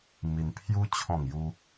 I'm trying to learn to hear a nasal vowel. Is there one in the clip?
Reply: yes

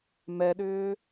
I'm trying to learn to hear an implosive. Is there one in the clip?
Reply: yes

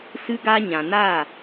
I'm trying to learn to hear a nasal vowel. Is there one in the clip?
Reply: yes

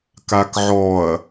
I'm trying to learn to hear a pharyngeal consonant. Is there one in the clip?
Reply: yes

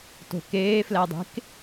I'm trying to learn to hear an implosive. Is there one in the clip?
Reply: no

